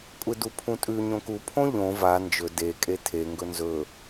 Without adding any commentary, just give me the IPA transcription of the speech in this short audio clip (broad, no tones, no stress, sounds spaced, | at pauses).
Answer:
kʷʼ e d u pʰ ũ tʼ ʉ ɲ õ k u pʰ õ ʎ õ v a n d͡ʒ ɵ d e kʼ e tʰ e ŋ ɡ ɵ n z ɵ